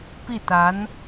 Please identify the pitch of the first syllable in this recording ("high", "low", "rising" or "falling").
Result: falling